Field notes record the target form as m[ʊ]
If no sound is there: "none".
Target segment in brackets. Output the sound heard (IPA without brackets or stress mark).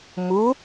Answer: u